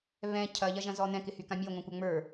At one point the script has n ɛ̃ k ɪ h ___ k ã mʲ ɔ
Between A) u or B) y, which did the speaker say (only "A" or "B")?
B